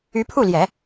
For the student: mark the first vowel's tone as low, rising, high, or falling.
rising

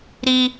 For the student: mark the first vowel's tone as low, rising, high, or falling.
high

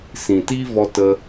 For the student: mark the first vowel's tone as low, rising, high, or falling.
low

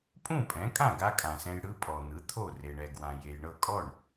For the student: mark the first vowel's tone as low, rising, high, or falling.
falling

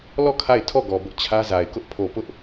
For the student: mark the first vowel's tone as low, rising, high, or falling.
falling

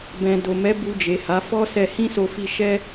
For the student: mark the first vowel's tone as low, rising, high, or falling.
low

